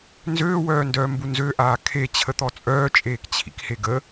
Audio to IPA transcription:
n z øː w œː n d œː m b u n z ø ʔ aː kʰ e t͡ɕʰ ə t̪ ɔ t͡sʼ œː t͡ʃʼ eː k t͡ɕʰ ḭ k h e ɡ ə

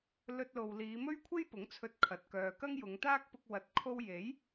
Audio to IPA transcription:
l ɵ˧ t̚ l o˨ w l iː˨˧ m ɵ˥ ɥ kʷʰ e˥ j p ʊ˨˥ ŋ t͡sʰ ɵ˧ t̚ kʰ ɐ˨ t̚ k œː˨ k ɐ˥ ŋ j ʊ˨˧ ŋ t̪ aː˥ k̚ p ʊ˧ k̚ w ɐ˨ t̚ kʰ o˧ w j e˨˥ j

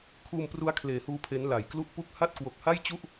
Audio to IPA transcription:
kʰ uː˧ m p r u˦˥ a̯ kʰ l eː˨˩ h uː˧ pʰ e˦˥ n l a˨˩ j k l u˥˩ ʔ p u˥˩ k̚ h a˥˩ t̚ k w o˨˩ k̚ h a˥˩ j t͡ɕ u˥˩ ʔ

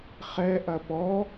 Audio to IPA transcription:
χ ɛ ʔ ɐ p ɔ

